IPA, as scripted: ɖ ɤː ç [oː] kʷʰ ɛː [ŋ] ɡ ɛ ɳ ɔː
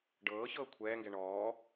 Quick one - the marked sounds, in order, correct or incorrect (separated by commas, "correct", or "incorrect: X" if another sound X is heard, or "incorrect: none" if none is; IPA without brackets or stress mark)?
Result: incorrect: ɤː, correct